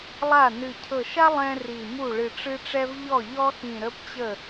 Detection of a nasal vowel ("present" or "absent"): present